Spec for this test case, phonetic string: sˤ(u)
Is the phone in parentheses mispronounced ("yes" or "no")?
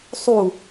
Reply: no